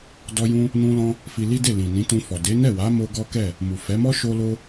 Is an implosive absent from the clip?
yes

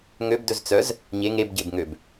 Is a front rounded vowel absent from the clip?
no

